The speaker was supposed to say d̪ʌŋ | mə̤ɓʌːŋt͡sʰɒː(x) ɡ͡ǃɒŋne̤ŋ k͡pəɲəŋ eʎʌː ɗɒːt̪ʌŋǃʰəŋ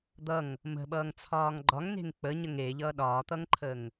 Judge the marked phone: incorrect: ŋ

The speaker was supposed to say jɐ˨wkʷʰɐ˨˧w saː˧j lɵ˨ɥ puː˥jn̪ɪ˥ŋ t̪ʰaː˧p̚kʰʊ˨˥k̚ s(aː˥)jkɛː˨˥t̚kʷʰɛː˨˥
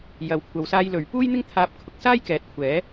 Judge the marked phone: correct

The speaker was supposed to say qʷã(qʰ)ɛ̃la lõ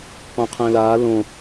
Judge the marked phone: correct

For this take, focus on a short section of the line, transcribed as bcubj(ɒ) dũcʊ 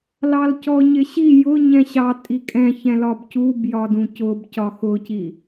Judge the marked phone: correct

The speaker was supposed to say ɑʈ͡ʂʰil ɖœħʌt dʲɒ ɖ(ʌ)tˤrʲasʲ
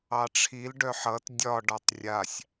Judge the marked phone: incorrect: ɒ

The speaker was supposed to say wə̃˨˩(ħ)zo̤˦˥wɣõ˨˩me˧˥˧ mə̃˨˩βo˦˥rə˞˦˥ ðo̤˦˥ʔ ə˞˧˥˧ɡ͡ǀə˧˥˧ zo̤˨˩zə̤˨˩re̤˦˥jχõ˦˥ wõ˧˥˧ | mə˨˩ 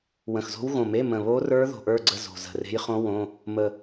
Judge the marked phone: incorrect: x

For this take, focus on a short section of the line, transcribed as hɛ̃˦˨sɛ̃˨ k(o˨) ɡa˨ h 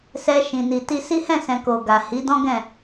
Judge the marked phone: correct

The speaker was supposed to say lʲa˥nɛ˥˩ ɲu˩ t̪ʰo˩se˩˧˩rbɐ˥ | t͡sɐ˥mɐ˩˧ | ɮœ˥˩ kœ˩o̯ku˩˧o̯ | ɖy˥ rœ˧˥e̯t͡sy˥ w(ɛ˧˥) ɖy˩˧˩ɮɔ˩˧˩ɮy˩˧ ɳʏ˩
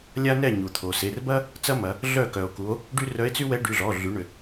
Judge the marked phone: correct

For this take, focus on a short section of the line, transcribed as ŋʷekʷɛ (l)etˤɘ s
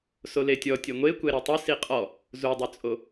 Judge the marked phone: incorrect: ɾ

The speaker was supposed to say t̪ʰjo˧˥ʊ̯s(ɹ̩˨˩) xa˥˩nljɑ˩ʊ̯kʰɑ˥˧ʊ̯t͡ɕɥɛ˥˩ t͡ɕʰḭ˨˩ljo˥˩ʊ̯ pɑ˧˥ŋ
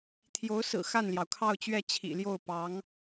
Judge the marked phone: correct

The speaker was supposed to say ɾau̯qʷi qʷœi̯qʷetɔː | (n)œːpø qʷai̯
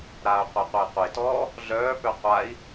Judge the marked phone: incorrect: ɮ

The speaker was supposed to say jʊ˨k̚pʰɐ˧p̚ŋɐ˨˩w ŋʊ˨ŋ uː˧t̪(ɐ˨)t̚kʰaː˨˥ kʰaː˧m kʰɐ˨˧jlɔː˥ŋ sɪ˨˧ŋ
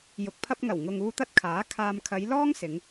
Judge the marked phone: incorrect: ɐ˥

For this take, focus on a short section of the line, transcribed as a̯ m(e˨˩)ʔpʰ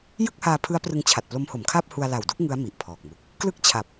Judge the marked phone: incorrect: i˨˩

